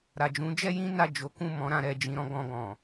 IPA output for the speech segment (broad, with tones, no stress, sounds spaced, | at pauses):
ɾ a˨ d͡ʒ ũ˨˦ d͡ʒ ɛ˦ j ĩ˦ n a˦˨ d͡ʒ o˨˦ k ũ˦˨ m ɔ̃˧ ɾ ã˧ ɾ ɛ˨ d͡ʒ ĩ˨˦ ɾ ɔ̃˦ ɡ ɔ̃˧ ɡ ɔ̃˨